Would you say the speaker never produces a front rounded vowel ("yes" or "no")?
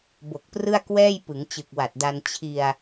yes